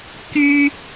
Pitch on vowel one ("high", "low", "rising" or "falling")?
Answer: high